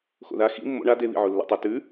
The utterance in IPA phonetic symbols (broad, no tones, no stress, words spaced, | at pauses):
xo̰ða xḭ mːo̰ ɳa deβḭʕo lːɛ̰tˤə tʉ